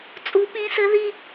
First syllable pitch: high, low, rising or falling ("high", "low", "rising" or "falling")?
rising